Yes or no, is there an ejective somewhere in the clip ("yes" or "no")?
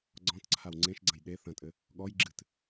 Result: yes